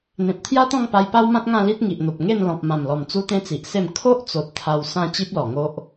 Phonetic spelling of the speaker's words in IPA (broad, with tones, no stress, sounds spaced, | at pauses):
n̪ ẽ˨ p̚ t̪ʰ j a˦ t̪ ɔ̃˥˧ ŋ p a˧ j p a˦ w m ã˦ t̚ ŋ ã˥˧ l i˦ t̚ ŋ i˨ ʔ n̪ o˨ p̚ ŋ e˥˧ n l ɔ̃˨ p̚ m ã˨˩ m l ɔ˨˩ m t͡s u˦ t̪ ẽ˦ t͡s i˨ ʔ s e˥˧ m kʰ o˦ ʔ t͡s o˨ t̚ t̪ʰ a˧ w s ã˥˧ t͡ɕ i˦ p̚ l ɔ˨˩ ŋ o˦ ʔ